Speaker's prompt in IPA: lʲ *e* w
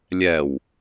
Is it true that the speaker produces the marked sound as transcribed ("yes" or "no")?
no